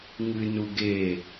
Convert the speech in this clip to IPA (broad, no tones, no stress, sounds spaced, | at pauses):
ŋ ɨ n u ɡ e